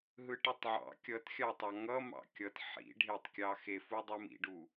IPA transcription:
ɦ ɯ ʈ ɯ tˤ ʕ ɑ̰ kʲ ʌ t xʲ ɑ tˤ ɑ ŋ ʌ m ɑ̰ kʲ ʌ t ħ ḭ ɖʱ e tˤ kʲ ɑ x e f u dˤ ɯ m ḭ ɖ u

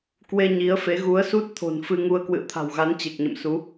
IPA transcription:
k w e˧ ɲ i˨˦ ə̯ f e˨˦ ɣ u˨˦ ə̯ s u˦˥ t̚ t̪ʰ o̤˨˩ n f ɨ˧ ŋ u˧ ə̯ k w ɨ̰˧˨ ə̯ t̪ʰ a̤˨˩ w ɣ a˨˦ n t͡ɕ e˨˩ k̚ ɲ ə̰˧˨ m s u˨˦

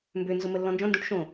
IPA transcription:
m b ø n z ʊ m ə lː ɔ̃ n d͡ʒ ɔ̃ n d ũ ʈ ʃ õ

